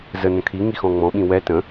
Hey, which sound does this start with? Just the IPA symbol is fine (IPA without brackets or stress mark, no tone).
z